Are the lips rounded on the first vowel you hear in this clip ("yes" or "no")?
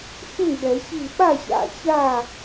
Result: yes